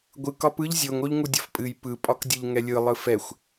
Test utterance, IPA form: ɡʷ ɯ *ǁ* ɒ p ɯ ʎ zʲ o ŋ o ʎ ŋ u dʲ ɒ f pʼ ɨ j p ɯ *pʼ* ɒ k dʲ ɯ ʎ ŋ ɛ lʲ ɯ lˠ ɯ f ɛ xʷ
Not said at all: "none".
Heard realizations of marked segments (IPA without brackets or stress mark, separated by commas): k, pʼ